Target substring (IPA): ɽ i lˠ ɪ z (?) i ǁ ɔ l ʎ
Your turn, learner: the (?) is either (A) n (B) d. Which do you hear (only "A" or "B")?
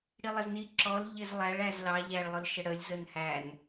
A